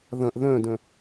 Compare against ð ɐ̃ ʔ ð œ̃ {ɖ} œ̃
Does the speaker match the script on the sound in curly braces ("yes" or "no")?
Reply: no